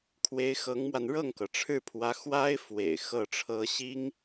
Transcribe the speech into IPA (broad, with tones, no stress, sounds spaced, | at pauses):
kʰ w e˧˥ ɪ̯ x ɤ˧˥ ŋ m w a˧ n ɻ ɤ˥˩ ŋ k ɤ˩ ʈ͡ʂʰ ɻ̩˥˩ pʰ w ä˧˥ x w a˥ ɪ̯ f w ḛ˨˩ ɪ̯ x ɤ˥˩ ʈ͡ʂʰ ɤ˥ ɕ i˥ ŋ